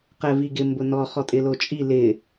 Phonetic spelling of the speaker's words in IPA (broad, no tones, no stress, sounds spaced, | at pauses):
q ɛ v i ɡ ɪ m b ʊ n ɔ χ ɔ tʼ ɪ l o t͡ʃʼ i l ɪ